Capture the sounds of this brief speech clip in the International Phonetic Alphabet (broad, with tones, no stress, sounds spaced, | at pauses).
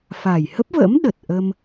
f a˨˩ j h ə˦˥ p̚ v ə̰ː˧˥ m ɗ ə˨˩ t̚ ʔ ə˧ m